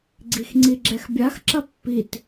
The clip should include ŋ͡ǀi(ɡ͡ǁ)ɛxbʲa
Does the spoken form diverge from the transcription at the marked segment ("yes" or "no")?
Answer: no